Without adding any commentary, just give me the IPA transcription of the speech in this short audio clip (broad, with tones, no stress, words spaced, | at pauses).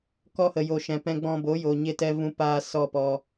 kɔ˧hə˨jo˨ ʃɛ̃˨pɛ̃˧ɡ͡bɔ̃˧ bo˨˦jo˨ ɲe˧tɛ˧ vũ˧ paː˦sɔ˦˨pɔ˧